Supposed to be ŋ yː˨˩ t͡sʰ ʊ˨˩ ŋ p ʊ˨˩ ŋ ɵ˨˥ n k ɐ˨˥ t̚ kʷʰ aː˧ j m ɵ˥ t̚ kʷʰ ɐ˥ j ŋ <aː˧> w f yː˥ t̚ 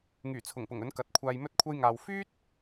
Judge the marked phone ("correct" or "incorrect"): correct